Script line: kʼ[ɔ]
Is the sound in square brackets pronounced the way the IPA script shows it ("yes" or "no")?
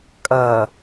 no